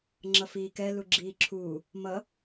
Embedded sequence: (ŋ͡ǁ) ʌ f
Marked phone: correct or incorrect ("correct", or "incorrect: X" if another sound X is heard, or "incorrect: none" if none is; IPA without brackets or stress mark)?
correct